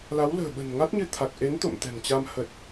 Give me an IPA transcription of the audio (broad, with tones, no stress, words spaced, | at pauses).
la˨˦wlə̤ː˨˩ ɓə̤˨˩n ŋa˦˥t̚ɲɨ˧t̪ʰa˨˩k̚ ʔe˨˦n t̪o̰˧˨mt̪ɛ̤˨˩ŋt͡ɕa˧m hə˨˩t̚